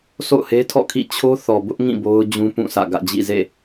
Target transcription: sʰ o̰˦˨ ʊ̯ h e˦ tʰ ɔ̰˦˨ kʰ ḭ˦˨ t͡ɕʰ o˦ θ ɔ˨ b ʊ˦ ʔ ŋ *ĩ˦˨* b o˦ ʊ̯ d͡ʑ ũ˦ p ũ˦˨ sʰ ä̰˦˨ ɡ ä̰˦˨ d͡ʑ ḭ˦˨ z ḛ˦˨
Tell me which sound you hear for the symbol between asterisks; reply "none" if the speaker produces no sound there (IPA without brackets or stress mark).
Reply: ĩ˦˨